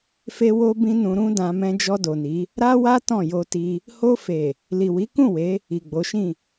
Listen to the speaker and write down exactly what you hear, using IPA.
f e˧ w o˧ b ĩ˧ n ũ˧ ɾ ũ˦ d ã˧ m ɛ̃˦ d͡ʒ ɔ˧ d o˨ n i˨˦ | ɾ a˦ w a˦ t ɔ̃˦˨ j o˧ t i˧ | h o˧ f e˨ | l i˨ w i˨˦ k ũ˦˨ w e˨˦ | i˨ ɡ͡b o˨˦ ʃ ĩ˦˨

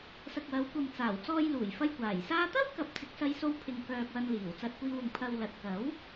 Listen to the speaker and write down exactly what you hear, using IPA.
s ɐ˨ k̚ w ɐ˨˧ w kʷ ɐ˨ m t͡s aː˨˩ w t͡s ɔː˧ j l uː˨˩ j f ɐ˧ j kʷ aː˨˩ j s aː˥ t̪ ɐ˥ w k ɐ˨˥ p̚ t͡s ɪ˨ k̚ s ɐ˧ j s o˧ w pʰ ɪ˧ ŋ k œː˧ k̚ w ɐ˧ n l iː˨˩ w t͡s ɐ˧ t̚ kʷ iː˧ w ʊ˨ ŋ pʰ ɐ˧ w l ɐ˨ t̚ k ɐ˨˥ w

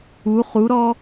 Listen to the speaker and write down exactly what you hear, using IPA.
u χ u ɾ ɔː

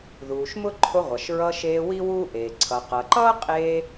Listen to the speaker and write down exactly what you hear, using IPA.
ð uː˩ ʃ m ʊ˥ ǃʰ ʊ˧ ʁʷ ʌ˩ ʃ ɹ ʌ˧ ʃ eː˧ w i˥ w uː˥ ʔ eː˩ ǀʰ ʌ˩ q ʌ˩ ǃ ʌː˥ qʼ eː˧

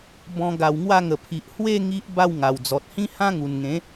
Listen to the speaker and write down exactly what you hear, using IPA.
b ɔ̃˧ ɡ a˨˩ w ŋ w a˥˧ ŋ ə˨˩ pʰ i˨ ʔ h w e˥˧ ŋ i˦ ʔ b a˥˧ w ŋ a˨˩ w d͡z ɔ˨ t̚ h ĩ˦ h ã˦ ŋ u˨˩ n ŋ ẽ˨˦

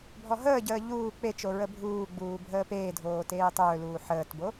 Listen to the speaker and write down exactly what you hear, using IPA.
bʱ ɔ ɦ əː ɟ əː ʎ uː k͡p e t͡ʃ o ɹ ə bʱ uː ɡ͡b uː bʱ əː p eː dʱ oː t eː tˤ ɵː l uː ħ əː t b o

